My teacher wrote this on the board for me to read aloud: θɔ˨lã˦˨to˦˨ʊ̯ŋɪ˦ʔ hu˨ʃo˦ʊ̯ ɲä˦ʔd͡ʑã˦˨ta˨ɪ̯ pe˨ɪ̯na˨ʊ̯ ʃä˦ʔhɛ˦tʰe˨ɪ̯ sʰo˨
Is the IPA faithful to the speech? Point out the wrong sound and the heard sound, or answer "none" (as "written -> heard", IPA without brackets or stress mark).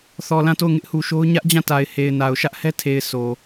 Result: p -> h